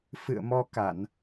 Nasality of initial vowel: oral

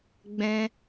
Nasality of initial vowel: nasal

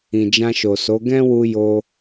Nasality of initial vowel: nasal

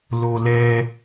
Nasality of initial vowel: oral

